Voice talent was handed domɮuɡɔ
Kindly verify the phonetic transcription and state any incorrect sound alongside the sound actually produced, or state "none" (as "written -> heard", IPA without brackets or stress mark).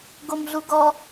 d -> ɡ